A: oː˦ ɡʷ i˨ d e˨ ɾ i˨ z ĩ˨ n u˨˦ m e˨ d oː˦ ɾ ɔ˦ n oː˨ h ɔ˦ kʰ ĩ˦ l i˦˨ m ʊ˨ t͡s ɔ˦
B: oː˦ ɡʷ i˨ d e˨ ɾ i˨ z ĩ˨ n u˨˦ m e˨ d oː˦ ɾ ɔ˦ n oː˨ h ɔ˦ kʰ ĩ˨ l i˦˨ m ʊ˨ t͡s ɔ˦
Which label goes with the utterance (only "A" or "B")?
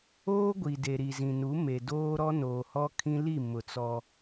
A